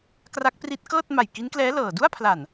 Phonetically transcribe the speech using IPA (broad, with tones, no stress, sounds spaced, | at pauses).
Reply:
k r a˦˥ k̚ p r i˦˥ t̚ k ɤː˥˩ t̚ m a˨˩ j k i˦˥ n k l ɛː˦˥ l ɤː˨˩ d u˥˩ a̯ pʰ l a˨˩ n